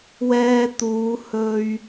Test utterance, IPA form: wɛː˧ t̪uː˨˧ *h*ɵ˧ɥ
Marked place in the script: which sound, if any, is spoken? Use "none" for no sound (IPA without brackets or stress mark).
h